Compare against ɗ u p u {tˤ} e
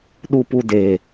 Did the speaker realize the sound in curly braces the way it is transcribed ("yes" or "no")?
no